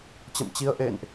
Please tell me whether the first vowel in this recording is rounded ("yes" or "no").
no